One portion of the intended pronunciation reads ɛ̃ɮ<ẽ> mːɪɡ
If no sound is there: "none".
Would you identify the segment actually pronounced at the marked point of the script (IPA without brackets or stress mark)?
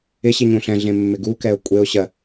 ẽ